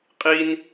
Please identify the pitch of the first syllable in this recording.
high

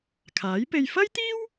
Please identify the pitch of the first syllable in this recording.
rising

